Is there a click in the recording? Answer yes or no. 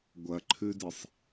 yes